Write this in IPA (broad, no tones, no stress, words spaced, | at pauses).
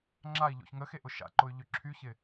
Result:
ŋ͡ǁai̯ʎo̰ç ŋəxeʔʊ ʃa̰ǃʊy̯ʎʏ ǁʰyçɪ